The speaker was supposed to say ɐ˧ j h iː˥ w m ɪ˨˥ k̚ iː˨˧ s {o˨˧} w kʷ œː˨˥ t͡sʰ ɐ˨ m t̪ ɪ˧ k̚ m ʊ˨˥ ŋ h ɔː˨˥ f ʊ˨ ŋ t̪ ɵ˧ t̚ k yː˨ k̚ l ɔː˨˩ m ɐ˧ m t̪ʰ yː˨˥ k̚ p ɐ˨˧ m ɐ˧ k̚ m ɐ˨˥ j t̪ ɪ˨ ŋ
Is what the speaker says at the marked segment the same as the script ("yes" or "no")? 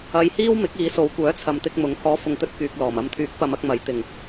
yes